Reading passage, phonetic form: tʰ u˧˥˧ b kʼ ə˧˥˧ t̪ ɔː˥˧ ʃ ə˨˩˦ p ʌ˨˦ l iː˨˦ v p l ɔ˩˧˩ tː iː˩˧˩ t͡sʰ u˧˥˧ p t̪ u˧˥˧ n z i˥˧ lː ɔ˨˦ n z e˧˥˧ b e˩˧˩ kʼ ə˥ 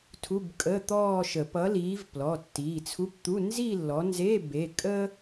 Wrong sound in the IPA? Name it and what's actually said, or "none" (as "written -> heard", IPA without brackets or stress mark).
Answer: none